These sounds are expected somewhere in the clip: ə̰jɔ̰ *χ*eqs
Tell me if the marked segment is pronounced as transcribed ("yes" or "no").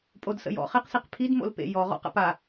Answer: yes